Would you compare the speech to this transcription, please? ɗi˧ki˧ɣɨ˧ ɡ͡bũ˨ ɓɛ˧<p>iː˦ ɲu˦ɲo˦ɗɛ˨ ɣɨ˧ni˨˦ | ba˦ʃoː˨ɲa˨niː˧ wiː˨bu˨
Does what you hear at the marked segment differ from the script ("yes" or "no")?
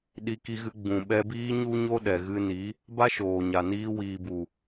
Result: yes